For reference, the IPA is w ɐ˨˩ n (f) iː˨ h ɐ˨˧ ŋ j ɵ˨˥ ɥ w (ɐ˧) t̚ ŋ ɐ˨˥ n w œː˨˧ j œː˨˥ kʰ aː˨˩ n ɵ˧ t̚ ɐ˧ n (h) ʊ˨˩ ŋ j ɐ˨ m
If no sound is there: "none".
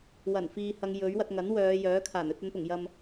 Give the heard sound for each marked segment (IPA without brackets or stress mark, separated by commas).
f, ɐ˧, p